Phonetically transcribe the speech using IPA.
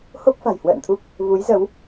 h o˦˥ k̚ f a̤˨˩ j h w ə̰ː˧˨ n t̪ʰ u˦˥ k̚ | v u˨˦ j z ə˨˦ w

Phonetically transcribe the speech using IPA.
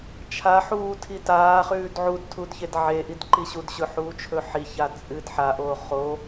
t͡ʃʰ a ħ uː tʰ i t aː χ ʉː d ʕ u d tʰ u d ç e d ʕ e ʔ i d ǃ i ɕ u d ɕ ɵ ħ uː t͡ʃʰ ɵ ħ i ç a t͡sʼ ɨ d ħ a ʔ oː χ o

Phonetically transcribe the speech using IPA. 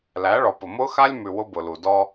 l æ˨˦ ɭ ɔ˨ p ʊ˨ m ʊ˦ x a˦ lʲ m ʉ˨ w ʊ˦ b ʊ˨ l u˨ d ɔ˦

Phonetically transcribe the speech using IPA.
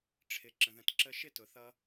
ʈ͡ʂʰ ɪ˨ ǁ ə̃˨ ð ə̃˨ t ǁ ə˧ ʃ ɪ˧ t ʊ˨ θ ʌ˧

